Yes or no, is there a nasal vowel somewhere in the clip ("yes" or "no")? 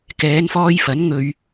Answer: no